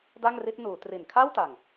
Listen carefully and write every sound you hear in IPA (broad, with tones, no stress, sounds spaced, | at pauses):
d a˥˩ ŋ r i˦˥ t̚ n uː˩˦ t r i˨˩ n kʰ a˥˩ w t a˨˩ ŋ